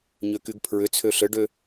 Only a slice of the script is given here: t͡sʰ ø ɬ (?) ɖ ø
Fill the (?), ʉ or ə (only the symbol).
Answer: ə